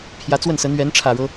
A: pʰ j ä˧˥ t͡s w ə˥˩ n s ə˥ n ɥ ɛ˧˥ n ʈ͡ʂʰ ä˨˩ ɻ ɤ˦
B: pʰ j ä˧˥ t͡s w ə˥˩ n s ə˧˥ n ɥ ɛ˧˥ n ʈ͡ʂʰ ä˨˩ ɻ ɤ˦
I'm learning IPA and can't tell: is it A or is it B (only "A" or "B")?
B